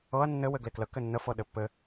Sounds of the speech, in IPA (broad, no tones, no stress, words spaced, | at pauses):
ɤɐ̯ nːɘ wɘɡleklə kɘnːə fɤɗɘpːɘ